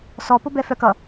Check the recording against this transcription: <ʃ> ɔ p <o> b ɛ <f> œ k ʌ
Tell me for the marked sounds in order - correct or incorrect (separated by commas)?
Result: incorrect, correct, correct